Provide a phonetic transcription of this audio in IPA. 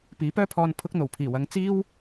p iː˨˥ p œː˥ pʰ ɔː˧ n pʰ ʊ˧ k̚ n̪ o˨˩ w pʰ iː˨˩ w ɐ˨˧ ŋ t͡s iː˥ w

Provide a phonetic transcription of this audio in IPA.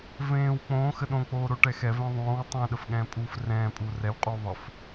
v ẽː w k͡p õː x ə ɗ õ k͡p oː ɾ o ʈ ɛ x ɛ v ẽ ðˤ õː w tˤ ɛ̃ ɗ ə f ɠ ɛ̃ː pʼ uː f r ɛ̃ː pʼ uː r ɛ w qʼ uː ðˤ ə f

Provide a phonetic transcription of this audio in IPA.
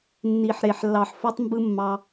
nː i˨ ħ ɾ e˨ ħ lː ɑ˨ ħ f o˧ tˤ m b ɯ˧ mː ɑ˧

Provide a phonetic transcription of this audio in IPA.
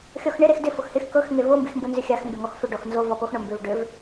xʲ ɔ x ɳ ɪ ɾ e x d ɪ f ʊ x h ɪ x k ɤ x ŋ e v o m b i x m b ʊ n z ʏ xʲ a x m b ɪ ŋ ɔ x f ʏ ɖ ɔ x n z o v ɔ p o x ɳ o m b ʏ v ɖ ʏ v

